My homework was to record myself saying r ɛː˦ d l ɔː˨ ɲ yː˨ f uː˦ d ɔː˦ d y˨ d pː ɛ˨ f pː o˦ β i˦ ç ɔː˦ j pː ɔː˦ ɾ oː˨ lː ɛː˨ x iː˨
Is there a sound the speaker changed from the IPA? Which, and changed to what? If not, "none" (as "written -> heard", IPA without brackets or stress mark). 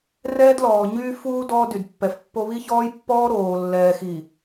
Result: yː˨ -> yː˦